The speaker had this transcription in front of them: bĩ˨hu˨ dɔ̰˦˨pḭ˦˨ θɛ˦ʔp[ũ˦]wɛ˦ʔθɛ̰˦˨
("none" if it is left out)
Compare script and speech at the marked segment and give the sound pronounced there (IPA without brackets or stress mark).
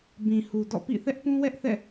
ũ˦